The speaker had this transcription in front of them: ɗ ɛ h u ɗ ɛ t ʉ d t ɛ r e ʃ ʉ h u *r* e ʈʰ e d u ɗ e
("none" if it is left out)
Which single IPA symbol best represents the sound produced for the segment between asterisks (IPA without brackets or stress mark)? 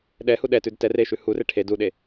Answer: r